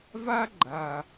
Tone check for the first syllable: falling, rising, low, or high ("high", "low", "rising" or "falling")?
high